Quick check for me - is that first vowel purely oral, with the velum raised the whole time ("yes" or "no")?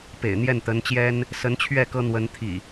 yes